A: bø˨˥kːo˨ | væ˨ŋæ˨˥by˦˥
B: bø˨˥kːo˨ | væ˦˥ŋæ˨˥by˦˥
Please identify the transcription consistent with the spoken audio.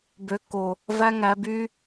B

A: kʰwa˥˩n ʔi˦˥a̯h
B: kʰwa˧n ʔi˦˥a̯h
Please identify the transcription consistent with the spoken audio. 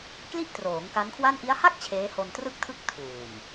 A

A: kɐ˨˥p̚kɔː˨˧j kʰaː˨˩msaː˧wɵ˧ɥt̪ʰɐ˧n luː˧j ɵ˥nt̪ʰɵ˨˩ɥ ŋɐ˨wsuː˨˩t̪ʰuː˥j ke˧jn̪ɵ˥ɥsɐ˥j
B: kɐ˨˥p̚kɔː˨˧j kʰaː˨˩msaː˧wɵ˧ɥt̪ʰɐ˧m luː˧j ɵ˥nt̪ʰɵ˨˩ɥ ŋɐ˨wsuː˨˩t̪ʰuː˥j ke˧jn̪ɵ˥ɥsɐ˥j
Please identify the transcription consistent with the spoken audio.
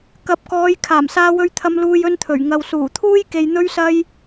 B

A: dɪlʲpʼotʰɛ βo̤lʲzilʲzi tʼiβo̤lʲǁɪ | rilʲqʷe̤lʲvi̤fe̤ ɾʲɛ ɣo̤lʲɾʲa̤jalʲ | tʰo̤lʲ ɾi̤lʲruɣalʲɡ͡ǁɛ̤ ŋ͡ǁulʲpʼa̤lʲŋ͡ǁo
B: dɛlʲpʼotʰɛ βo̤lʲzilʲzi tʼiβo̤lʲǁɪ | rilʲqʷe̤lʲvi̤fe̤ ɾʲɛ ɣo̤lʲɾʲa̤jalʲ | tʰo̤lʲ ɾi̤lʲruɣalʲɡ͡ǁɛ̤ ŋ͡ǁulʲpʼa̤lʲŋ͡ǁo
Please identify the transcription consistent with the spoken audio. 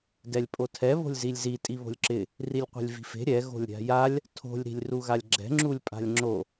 B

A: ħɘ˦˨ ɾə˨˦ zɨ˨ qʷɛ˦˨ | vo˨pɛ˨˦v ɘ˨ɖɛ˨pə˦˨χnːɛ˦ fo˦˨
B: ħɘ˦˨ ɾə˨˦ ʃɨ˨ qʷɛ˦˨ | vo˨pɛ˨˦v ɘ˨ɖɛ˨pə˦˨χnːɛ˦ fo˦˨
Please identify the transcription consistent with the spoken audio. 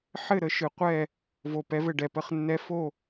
B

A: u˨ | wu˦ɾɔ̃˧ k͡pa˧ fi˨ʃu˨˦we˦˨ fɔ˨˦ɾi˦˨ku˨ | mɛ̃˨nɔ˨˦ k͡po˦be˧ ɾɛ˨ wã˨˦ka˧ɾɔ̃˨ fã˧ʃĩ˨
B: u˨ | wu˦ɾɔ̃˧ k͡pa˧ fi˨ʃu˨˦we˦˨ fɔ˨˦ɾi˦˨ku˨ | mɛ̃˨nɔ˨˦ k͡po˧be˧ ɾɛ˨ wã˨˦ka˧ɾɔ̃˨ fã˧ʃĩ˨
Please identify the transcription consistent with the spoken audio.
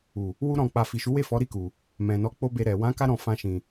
A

